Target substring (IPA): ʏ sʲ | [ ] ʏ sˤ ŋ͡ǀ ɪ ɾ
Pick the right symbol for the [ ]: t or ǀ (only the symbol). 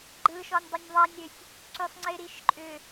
ǀ